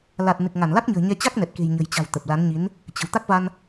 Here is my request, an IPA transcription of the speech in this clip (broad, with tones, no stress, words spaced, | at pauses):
la˨˩t̚ nɨ˨˩k̚ŋa˧˩nla˦˥k̚ɲə̤ː˨˩ ɲɛ˧t͡ɕa˦˥k̚nɛ˨˩t̚ke̤˨˩j ɲə̤˨˩jt͡ɕa̤˨˩w t̪ə˨˩p̚la˨˦nɲi˨˦n | t͡ɕə̤˨˩w t̪a˦˥k̚va˧n